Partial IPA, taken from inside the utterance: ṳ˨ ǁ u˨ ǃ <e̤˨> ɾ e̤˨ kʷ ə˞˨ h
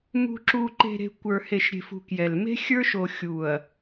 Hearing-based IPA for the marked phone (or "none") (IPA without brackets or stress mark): e̤˨